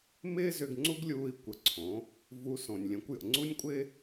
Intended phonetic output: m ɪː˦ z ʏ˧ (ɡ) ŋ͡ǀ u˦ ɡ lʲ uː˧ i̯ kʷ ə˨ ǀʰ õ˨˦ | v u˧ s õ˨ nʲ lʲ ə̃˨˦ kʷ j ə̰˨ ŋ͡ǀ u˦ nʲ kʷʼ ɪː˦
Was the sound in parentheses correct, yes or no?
yes